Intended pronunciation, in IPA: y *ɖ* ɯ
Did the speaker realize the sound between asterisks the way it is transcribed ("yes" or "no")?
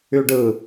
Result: yes